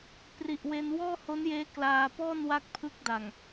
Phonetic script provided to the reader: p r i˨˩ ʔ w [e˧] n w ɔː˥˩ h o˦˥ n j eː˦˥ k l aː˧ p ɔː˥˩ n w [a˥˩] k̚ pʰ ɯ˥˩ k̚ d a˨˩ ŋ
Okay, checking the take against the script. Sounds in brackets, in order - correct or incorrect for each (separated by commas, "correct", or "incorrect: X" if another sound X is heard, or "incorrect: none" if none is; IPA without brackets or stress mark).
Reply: correct, incorrect: a˦˥